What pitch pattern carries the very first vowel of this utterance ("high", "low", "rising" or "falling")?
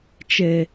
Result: low